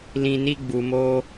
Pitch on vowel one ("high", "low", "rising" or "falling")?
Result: low